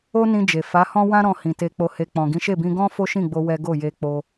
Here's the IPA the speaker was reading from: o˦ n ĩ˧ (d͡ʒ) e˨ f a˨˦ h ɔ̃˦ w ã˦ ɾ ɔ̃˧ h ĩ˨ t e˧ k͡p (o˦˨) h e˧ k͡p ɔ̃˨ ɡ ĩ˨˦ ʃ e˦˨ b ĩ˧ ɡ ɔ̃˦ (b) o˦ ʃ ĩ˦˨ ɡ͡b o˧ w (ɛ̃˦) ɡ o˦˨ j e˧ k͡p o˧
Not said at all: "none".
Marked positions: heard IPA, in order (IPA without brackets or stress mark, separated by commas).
d͡ʒ, o˧, f, ɛ˦